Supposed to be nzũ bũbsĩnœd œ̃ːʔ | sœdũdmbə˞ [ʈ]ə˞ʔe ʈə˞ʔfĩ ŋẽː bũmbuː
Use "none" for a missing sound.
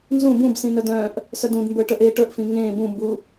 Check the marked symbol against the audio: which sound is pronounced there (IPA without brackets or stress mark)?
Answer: ʈ